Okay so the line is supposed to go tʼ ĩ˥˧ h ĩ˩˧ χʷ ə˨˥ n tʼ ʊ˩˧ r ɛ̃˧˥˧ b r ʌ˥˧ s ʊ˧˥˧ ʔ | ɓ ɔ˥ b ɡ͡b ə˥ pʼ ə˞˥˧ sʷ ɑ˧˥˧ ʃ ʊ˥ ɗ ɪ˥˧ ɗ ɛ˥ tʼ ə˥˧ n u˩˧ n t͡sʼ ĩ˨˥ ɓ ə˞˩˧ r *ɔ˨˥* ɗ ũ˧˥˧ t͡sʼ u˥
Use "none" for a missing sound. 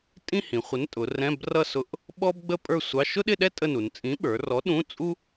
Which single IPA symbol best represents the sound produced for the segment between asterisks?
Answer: ɔ˨˥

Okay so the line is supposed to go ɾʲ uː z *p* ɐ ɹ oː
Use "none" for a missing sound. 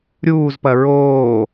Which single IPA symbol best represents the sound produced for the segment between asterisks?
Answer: p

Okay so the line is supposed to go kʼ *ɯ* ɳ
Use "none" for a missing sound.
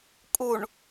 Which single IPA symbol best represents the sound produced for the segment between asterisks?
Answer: u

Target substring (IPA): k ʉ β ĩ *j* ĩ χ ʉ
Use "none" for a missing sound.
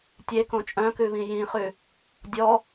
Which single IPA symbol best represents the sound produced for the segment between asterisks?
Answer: j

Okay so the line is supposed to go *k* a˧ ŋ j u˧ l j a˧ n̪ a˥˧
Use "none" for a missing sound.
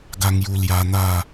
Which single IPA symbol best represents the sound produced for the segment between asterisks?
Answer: ɡ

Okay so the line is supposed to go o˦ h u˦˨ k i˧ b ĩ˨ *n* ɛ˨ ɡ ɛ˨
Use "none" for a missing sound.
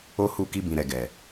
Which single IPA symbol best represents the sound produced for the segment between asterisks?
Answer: ɾ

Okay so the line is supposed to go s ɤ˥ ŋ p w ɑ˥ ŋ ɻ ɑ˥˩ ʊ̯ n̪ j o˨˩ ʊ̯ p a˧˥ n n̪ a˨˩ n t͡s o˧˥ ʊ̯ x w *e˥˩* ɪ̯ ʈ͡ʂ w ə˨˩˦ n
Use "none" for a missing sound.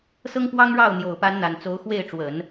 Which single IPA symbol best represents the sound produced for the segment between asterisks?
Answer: e˥˩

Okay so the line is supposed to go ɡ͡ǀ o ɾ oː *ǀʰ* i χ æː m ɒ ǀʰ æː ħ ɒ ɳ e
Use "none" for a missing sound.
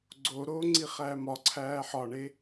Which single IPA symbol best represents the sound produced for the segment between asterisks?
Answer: ŋ͡ǀ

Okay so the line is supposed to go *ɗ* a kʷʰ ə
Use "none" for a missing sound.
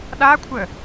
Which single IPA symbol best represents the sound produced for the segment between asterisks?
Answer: ɗ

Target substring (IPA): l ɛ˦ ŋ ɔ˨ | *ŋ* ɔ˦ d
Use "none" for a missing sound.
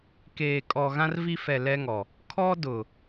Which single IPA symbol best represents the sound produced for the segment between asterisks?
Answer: kʰ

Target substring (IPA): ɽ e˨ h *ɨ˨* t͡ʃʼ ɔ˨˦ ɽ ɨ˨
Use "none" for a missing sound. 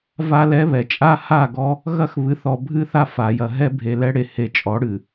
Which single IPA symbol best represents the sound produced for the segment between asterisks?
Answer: e˨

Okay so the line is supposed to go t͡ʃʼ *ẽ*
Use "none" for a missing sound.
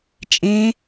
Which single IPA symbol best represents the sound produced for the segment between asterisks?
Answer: ẽ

